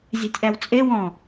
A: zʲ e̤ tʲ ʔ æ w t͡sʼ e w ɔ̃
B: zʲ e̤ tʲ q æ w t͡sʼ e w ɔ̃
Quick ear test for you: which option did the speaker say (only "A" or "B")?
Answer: A